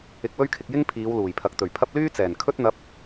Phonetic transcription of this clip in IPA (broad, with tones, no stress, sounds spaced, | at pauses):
ɪ˧ k̚ w ɵ˥ ɥ kʰ ɪ˧ k̚ j ɪ˥ ŋ pʰ iː˨˧ w l uː˨˩ j pʰ ɐ˨˥ k̚ t̪ ɵ˨˩ ɥ pʰ ɐ˥ p̚ l yː˥ t͡s ɛː˨˩ n kʰ ɵ˥ t̚ n̪ ɐ˧ p̚